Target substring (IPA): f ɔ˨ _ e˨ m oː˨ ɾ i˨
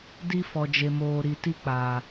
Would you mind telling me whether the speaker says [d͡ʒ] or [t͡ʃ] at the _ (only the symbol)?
d͡ʒ